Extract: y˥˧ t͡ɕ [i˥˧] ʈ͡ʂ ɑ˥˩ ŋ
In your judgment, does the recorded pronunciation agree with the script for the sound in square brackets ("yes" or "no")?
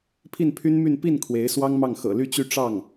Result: no